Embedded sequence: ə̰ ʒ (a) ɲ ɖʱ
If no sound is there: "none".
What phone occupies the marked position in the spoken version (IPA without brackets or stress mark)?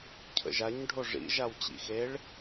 a